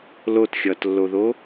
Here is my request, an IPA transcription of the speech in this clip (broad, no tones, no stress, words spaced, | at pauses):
lotxʲʌːtlːoðo